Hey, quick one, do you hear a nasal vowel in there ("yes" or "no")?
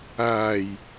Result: no